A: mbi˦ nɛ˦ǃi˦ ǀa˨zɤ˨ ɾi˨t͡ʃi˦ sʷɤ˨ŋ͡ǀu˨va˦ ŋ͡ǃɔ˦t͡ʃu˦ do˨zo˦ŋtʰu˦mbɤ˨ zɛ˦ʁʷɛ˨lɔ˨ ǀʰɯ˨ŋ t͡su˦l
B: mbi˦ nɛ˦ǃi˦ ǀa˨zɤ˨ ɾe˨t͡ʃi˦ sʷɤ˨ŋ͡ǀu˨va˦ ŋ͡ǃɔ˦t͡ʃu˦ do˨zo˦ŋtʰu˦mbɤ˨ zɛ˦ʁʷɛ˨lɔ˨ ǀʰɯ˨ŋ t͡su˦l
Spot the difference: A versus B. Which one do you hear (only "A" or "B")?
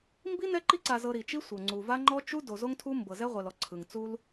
A